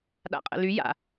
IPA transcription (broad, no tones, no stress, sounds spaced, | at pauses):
ɗ a̰ qʼ ə̰ l y j a̰